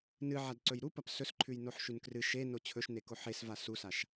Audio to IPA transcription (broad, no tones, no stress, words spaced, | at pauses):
nɨʕad ǀɵjɾupɐp sɵsǃʰʉj noħʃʉnkrɨ ʃeno t͡ɕʰɵʃneko ħesva susaʃ